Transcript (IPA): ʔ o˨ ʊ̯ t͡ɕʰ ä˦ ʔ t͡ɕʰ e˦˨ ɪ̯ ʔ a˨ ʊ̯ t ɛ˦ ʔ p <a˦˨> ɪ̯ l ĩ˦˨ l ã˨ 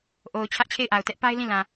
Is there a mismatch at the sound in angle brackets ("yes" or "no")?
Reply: yes